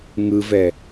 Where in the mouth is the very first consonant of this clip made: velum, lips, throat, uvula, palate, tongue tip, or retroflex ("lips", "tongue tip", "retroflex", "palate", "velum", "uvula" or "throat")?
velum